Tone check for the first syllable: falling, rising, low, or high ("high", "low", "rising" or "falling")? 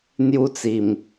high